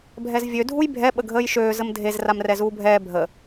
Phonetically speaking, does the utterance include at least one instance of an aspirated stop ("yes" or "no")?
no